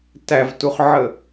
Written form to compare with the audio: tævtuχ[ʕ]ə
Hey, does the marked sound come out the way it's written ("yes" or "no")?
yes